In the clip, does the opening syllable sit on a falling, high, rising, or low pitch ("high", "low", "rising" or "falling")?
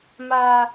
high